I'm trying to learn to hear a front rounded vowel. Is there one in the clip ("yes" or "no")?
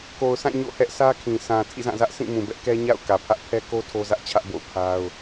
no